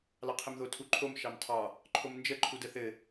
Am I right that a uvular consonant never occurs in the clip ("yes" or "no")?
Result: no